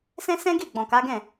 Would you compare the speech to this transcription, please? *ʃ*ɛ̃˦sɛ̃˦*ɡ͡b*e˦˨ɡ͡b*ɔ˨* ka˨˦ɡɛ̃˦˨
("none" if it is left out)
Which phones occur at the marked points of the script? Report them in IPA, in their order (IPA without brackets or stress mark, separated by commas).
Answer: s, ɡ, ɔ̃˨